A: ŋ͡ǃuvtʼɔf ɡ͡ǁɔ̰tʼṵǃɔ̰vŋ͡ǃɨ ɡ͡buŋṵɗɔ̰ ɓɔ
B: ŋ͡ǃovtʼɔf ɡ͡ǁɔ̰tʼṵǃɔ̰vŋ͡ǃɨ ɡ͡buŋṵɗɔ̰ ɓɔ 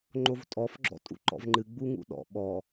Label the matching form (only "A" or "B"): B